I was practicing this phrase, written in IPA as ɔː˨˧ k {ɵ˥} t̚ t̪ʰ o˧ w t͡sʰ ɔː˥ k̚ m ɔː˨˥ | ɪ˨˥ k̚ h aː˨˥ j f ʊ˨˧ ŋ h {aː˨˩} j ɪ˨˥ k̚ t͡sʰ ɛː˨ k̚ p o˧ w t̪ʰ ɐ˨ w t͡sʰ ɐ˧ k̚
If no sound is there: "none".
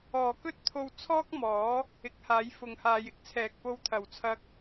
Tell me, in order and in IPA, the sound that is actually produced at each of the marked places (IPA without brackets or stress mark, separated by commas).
ɵ˥, aː˨˧